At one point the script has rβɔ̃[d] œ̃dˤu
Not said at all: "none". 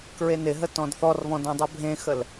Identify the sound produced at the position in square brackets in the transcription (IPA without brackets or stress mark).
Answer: d